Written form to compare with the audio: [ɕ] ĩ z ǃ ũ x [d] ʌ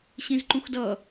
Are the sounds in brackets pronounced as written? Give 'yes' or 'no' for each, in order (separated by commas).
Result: yes, yes